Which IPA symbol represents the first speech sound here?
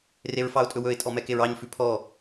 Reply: r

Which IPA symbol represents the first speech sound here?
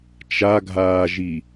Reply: t͡ʃ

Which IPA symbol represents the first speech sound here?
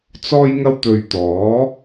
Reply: t͡s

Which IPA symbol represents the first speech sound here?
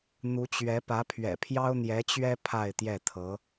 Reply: n̪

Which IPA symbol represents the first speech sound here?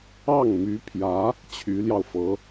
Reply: ɑ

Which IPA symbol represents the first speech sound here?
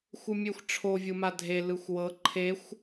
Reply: xʷ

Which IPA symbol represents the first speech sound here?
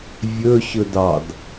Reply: vʲ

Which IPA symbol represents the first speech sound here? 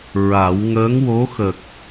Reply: ɹ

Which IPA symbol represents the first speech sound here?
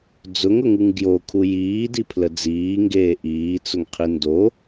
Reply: d͡z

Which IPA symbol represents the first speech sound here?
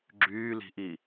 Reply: ɡ͡ǁ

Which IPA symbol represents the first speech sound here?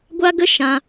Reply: ɡʷ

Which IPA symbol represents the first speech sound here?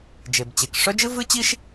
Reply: d͡ʒ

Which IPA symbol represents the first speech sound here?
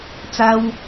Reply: t͡s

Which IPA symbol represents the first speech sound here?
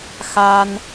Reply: x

